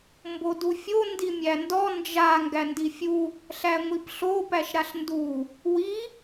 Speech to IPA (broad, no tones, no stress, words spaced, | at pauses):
mbodufʲo ndimʲændɔ nd͡ʒa ŋɡændifʲu | ɬæŋʷipɬo pæʃɾaɬndu | wi